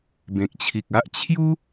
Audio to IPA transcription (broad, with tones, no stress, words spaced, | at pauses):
bẽ˨k̚t͡ɕʰi˨k̚a˦ʔ t͡ɕʰju˦